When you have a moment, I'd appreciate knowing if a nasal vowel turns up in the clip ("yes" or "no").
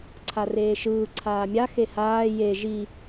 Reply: no